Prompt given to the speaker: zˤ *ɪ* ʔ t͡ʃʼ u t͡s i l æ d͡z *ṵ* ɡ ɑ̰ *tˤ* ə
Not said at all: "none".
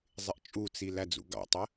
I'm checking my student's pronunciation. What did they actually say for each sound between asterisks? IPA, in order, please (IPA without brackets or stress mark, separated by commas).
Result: ɪ, ṵ, tˤ